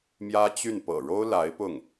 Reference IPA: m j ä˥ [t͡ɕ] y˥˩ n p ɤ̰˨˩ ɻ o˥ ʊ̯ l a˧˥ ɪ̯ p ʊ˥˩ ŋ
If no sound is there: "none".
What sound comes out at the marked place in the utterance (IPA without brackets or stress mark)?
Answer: t͡ɕ